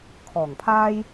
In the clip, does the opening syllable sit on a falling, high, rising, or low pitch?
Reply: low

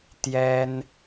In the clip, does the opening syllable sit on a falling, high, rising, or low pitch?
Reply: high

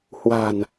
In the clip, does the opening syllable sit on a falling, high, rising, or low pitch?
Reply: low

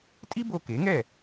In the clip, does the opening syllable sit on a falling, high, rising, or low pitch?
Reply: high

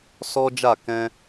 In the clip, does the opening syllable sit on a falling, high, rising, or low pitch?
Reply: high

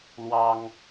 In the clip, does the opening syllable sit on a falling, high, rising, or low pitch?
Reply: high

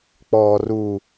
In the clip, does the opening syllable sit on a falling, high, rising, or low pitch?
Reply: low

